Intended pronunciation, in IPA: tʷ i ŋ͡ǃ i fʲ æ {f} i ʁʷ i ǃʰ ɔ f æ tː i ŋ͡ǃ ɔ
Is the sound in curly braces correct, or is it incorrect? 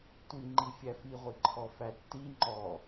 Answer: correct